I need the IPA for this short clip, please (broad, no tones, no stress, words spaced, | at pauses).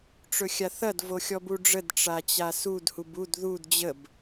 ʈ͡ʂɵxʲaθɐd voxʲɔbuɖ͡ʐəd ʈ͡ʂat͡ɕasud hubud ðud d͡ʑəb